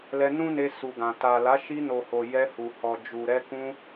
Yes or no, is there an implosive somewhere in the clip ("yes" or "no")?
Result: no